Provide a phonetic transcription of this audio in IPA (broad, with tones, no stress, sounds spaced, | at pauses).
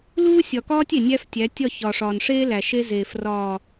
l uː˦ sʲ ɒ˨ k ɒː˦ tʲ e˨ nʲ æ˦ f tʲ æ˨˦ tʲ ɒ˦˨ ç ɒ˨ ʂ ɒː˨ n ʂ eː˦ l æ˨ ʃ e˦ z eː˨ f r ɒː˨